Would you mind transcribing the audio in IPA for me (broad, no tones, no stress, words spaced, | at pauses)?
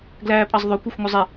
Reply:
ɡlæːpʼɑzðˤɵ kʷexʷŋɵzˤe